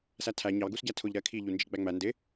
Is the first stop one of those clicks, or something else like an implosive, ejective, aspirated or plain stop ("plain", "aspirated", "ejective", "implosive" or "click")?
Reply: aspirated